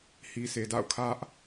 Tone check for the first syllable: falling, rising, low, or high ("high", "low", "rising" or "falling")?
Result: low